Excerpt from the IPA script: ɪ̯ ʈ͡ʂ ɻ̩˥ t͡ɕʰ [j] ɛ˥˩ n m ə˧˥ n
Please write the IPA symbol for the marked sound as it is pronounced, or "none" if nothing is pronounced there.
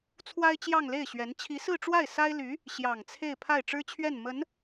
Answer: ɥ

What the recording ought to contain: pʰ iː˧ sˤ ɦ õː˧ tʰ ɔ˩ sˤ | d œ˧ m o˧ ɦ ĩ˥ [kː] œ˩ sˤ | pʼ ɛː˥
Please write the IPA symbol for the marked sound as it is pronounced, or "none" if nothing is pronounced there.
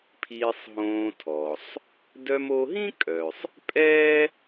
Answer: kʼ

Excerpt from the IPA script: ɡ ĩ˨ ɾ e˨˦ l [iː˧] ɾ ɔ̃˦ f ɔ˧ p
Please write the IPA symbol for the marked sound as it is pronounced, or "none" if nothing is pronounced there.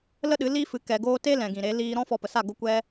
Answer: iː˧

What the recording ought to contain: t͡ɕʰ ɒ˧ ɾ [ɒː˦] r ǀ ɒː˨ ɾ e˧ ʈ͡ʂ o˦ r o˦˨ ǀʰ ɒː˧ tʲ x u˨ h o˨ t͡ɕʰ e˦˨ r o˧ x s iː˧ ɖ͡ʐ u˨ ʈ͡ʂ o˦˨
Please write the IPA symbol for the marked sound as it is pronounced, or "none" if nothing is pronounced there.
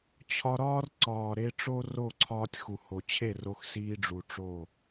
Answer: ɒː˦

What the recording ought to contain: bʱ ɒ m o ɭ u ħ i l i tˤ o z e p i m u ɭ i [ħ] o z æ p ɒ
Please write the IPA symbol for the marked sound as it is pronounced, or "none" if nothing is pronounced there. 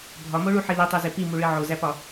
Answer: ʕ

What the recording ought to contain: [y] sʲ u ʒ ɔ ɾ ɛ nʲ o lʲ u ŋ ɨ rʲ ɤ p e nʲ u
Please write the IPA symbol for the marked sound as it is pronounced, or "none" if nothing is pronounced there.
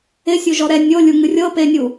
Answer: ɪ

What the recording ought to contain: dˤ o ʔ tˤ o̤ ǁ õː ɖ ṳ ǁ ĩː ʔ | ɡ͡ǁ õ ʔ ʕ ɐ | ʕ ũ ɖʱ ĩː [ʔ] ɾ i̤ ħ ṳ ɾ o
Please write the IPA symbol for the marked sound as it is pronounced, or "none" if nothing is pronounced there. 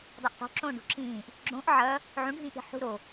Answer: ʔ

